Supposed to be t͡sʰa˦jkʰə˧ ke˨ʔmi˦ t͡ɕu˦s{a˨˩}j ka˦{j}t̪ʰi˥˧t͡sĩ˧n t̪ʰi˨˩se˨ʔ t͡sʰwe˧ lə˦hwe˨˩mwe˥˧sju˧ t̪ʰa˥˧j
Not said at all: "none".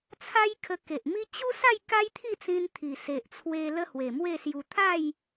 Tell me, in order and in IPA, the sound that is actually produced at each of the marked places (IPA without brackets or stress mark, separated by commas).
a˥˧, j